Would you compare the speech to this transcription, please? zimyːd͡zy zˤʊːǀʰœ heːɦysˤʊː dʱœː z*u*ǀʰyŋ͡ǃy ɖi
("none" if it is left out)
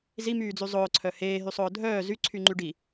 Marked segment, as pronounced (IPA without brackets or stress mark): y